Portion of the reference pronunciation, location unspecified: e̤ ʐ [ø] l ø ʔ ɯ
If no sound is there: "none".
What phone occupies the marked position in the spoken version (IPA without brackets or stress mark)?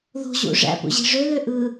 ø